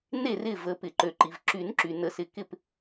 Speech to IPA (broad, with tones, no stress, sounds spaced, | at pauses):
n e˥˩ r ɪ˥˩ v ə˨˩˦ p ɪ˩ ǃ ø˩ ǃ i˩ v ǁ y˨˩˦ n ǁ y˩ n ə˧˩ s ɪ˧˩ k ɪ˥˩ p